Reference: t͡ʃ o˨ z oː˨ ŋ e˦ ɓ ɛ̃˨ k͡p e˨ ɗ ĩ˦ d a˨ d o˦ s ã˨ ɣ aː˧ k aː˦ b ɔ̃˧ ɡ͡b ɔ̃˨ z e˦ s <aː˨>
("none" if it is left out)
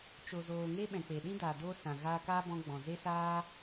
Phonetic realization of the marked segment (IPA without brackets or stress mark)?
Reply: aː˦